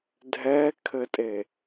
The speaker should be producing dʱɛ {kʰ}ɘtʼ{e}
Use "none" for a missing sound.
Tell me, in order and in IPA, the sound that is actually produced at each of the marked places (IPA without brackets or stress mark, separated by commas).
kʰ, e